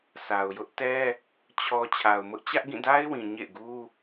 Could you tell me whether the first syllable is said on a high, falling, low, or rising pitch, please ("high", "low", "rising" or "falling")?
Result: low